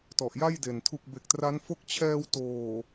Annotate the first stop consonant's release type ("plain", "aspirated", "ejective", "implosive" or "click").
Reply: plain